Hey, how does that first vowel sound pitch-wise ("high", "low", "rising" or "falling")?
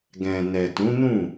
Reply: low